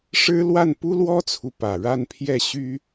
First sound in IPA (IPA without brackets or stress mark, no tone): ʂ